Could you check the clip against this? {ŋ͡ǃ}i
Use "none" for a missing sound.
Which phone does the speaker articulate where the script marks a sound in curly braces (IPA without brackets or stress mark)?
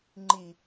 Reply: ŋ͡ǃ